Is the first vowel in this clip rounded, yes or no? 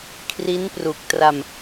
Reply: no